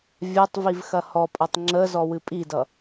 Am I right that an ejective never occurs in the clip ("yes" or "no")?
no